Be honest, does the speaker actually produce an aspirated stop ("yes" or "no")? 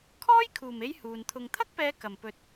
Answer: yes